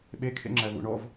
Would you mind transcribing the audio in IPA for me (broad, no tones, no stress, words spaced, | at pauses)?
ɓekʰḛŋ͡ǁæ βṵɳɔv